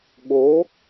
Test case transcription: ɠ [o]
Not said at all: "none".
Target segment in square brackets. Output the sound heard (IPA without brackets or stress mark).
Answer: o